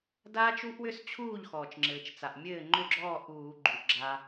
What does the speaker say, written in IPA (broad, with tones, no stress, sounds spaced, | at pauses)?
d aː˦˥ t͡ʃ u˦˥ ʔ w ʏ˦˥ s t͡ɕʰ uː˥˩ ʎ x ɔː˩ t͡ʃ ŋ͡ǁ ɘː˩ t͡ʃ t͡s a˩ ʔ mʲ ɘː˥˩ ŋ͡ǃ ʏ˥˩ ɡ͡ǁ ɔː˥˩ ʔ uː˧˩˧ ɡ͡ǃ u˩ ʔ ɡ͡ǁ aː˧